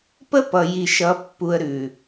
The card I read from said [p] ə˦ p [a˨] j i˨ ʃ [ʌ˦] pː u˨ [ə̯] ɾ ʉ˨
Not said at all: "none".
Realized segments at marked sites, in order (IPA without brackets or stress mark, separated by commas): p, ʌ˨, ʌ˨˦, ə̯